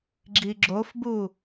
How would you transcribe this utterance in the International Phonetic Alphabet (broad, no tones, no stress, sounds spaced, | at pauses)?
ɡ͡ǁ i ɡ͡ǁ o f b u